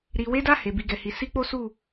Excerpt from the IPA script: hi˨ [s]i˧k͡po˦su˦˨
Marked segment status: correct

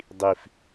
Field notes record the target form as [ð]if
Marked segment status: incorrect: dˤ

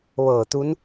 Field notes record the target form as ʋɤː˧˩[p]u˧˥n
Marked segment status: incorrect: t̪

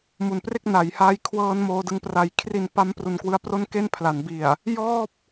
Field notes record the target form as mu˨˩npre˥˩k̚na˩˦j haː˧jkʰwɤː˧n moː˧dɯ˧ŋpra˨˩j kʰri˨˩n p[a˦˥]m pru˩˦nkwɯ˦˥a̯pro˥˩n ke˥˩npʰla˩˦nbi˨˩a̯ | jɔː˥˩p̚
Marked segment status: correct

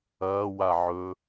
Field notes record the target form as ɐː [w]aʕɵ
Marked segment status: correct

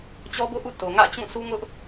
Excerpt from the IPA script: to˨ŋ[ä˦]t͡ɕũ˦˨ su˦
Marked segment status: incorrect: ä̰˦˨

